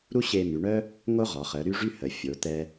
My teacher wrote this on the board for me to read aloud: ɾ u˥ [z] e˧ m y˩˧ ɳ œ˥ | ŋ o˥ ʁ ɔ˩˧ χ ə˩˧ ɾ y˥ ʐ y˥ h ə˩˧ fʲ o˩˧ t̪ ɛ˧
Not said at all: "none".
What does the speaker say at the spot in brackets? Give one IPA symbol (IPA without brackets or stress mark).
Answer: ɕ